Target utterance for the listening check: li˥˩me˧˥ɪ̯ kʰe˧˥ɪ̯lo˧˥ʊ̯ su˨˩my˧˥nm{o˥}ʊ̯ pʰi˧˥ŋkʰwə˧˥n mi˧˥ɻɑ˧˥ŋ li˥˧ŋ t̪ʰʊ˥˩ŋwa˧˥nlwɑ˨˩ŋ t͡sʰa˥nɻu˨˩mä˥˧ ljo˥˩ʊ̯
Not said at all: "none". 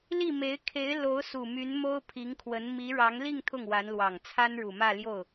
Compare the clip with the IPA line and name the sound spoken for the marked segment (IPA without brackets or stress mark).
o˥